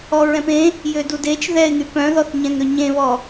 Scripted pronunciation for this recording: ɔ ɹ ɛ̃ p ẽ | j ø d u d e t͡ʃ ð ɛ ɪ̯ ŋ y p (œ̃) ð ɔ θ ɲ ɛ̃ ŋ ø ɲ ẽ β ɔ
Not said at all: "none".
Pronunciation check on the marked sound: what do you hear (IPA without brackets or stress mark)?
œ̃